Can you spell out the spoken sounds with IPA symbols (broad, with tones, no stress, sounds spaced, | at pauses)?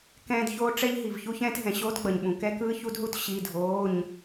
k ɛ̃ː˦ d ç oː˦ ʈ͡ʂ ɛ˦ ʎ ɦ i˩ v ç u˦ ç ɛ̃ː˦ t ɦ ɛ̃˩ ɕ oː˦ t ɡ͡b ʌ˩ ɲ ɓ ũ˩ k ɛ˦ k ɯː˦ ç u˦ d ɦ u˦ t ɕ i˩˧˩ dʱ oː˩˧˩ ɲ